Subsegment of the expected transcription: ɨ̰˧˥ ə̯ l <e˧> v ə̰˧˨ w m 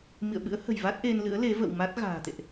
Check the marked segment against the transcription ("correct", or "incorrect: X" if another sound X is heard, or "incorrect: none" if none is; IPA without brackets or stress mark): incorrect: e˨˦